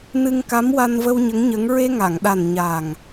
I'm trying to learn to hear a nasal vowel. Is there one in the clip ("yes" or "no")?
no